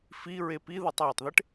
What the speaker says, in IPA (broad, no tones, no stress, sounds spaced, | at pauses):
f i ɹ e p i ð u tˤ w e tˤ ð e ʈ